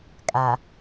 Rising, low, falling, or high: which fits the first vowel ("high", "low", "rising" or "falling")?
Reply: low